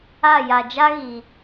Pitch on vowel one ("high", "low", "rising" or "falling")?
falling